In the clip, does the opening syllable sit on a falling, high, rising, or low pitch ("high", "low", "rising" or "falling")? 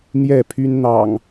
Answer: falling